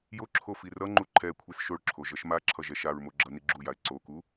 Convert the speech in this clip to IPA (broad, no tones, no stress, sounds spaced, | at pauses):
j o ǁʰ o f i r ʌ ŋ͡ǃ u ǃʰ ɛ kʷʰ i s ʃ o ɭ ǁʰ o ʒ ʌ ʃ m a ǁʰ ʌ ʒ ɛ ʃ a ɹ m o ɡ͡ǁ ʌ n i ɡ͡ǁ u j a ɪ̯ ǀ o k u